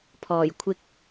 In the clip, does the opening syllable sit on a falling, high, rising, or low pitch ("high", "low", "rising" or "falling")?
low